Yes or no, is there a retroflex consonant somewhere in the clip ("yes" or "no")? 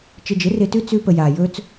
no